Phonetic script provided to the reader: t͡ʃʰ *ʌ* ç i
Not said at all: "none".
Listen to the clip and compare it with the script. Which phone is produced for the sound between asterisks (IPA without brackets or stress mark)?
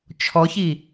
ɔ